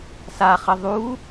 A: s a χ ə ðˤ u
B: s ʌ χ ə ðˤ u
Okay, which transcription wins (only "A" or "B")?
A